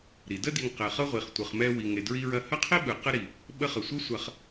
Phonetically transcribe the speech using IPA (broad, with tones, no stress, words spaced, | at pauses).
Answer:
ɾi˩də˦di˨ŋ qɛ˨χɤ˥ ʁʷi˨χtʷɯ˨χmɛ˦ wi˨ŋe˨dɹi˦ɹɐ˦ hɐ˥qʰi˥ ɓɯ˨qə˥ɾi˨ | ɓə˦χə˨sʷɤ˥ sʷɐ˦χ